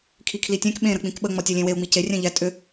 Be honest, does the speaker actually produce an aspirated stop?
yes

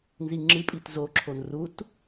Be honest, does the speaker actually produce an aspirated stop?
yes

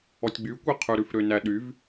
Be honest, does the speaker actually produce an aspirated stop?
yes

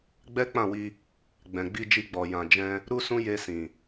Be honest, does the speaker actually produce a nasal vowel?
yes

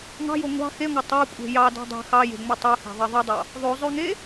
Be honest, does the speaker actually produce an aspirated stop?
no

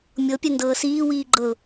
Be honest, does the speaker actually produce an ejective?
no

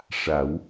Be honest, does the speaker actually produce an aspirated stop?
no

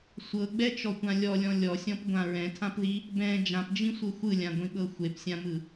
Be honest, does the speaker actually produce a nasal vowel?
yes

